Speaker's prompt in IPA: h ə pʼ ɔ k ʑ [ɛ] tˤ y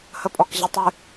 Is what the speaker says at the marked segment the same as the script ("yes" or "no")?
no